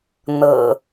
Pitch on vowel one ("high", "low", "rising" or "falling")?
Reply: low